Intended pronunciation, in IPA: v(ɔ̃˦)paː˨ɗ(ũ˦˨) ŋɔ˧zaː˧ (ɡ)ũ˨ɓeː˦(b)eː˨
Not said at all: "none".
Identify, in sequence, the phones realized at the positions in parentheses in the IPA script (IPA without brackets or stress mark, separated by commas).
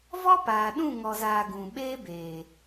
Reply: ɔ˦, ũ˦˨, ɡ, b